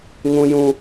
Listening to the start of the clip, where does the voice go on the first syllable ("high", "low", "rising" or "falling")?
high